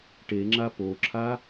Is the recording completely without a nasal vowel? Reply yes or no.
yes